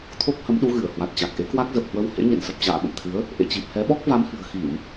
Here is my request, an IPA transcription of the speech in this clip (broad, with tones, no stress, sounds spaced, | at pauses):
t̪ʰ o˦˥ k̚ h ə˨˦ m ɗ u˨˦ ɣ ɨ˧˩ ə̯ h w a˨˩ t̚ t͡ɕ a˨˩ k̚ ʔ e˨˦ k w a˦˥ k̚ z ə˨˩ p̚ h w ə˧ w h ḛ˧˥ ɲ ḛ˧˨ n s ə˨˩ p̚ t͡ɕ a̰ː˧˨ ɓ ə̰˧˨ m t̪ʰ ɨ˨˦ ə̯ | ʔ ḛ˧˨ t͡ɕ i˨˩ p̚ h ɛ˨˦ ɓ ɔ˦˥ k̚ v a˨˦ m h ɨ̤˨˩ ə̯ x i˧˩˨ m